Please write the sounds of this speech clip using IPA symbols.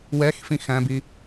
w ɛ x f ĩ x æ̃ b i

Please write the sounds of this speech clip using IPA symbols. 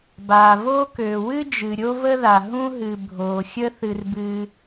b aː˩ v oː˥ k øː˩ w ɨ˥ d͡ʒ ɨ˩ ɾʲ o˥ v ə˥ ð a˩ ɦ ũ˥ ɦ ɨ˩ bʱ oː˩ xʲ ə˥ θ ɨ˩ r b ɨː˩

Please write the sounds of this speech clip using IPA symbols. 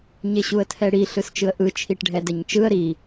ɲ e ɕ u ə̯ tʰ ɛ ɽ i ɬ ɯ s t͡ʃ ɯ ə̯ ʔ ɯ t͡ʃʰ i ʈ ɖʱ ɛ d ɛ ɲ t͡ʃ ɯ ə̯ ɾ i

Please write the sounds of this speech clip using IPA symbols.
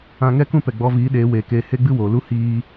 ã˧ ŋ ɛ˦ k ũ˦ p ɛ˨ ɡ͡b ɔ˧ v iː˨˦ ɗ eː˨˦ w eː˨ k eː˧ h e˦ ɡ͡b ɨ˦ w oː˨ l u˦ h iː˦

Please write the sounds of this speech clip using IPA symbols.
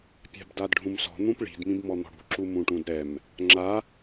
pʲ a̤ b d a d ɖʱ ũ m s ɔ̤ n̪ ũ p ɭ i̤ d m ĩ b m ɔ n̪ ɔ̤ ɽ ṳ ǁ u m ũ ʈ ũ d ɾ ɛ m | ŋ͡ǁ a

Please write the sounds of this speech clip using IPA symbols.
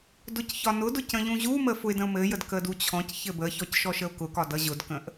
d ʊ c ç ɒ n ʊ d ʊ c ə̃ ʎ ũ ʑ u m ə f ʊ ɪ̯ d ə̃ ʊ̯ m ɘ j ə d k ə d u t͡ɕʰ ɔ̃ c ç ɘ b ə ç ɔ c ʃ ɔ ʃ ə ʊ̯ k ʊ k ɒ d ʌ ʑ ʊ d k ə̃ ʔ

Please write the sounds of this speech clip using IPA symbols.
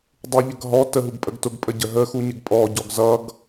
dˤ u ʎ ə ɡ ɦ ɔ t ə ɦ u ɡ pʼ ə ɡ t ʊ ɡ pʼ ə ɟ ə ɦ ə x u ɲ ɪ ɡ pʼ ɔ ɟ ɔ ɡ z ʌ ɡ

